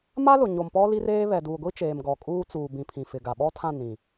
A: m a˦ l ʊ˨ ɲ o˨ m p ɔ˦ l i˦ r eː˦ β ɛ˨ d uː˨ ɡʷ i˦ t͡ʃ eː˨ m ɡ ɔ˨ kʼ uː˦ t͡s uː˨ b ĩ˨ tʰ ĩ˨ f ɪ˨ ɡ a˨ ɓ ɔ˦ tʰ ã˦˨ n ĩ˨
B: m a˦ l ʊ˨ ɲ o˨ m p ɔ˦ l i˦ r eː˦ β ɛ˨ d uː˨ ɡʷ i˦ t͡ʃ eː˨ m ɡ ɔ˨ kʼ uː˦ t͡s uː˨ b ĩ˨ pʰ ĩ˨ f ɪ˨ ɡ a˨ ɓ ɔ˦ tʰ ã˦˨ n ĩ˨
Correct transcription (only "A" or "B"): B